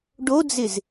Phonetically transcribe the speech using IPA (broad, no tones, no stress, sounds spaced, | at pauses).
ɖ o d͡z ɪ z